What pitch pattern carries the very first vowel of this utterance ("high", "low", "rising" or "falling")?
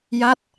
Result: falling